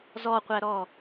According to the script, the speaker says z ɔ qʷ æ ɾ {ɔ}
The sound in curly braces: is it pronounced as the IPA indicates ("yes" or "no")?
yes